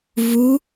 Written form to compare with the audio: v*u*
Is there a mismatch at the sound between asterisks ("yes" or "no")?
no